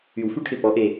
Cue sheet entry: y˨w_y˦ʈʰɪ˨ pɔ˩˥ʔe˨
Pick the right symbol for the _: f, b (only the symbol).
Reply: f